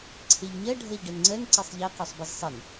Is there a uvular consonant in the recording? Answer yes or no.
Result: yes